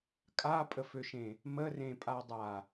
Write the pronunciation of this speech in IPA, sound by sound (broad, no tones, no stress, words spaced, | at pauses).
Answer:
kʼapʼəføʃẽ | mərẽpʼadˤa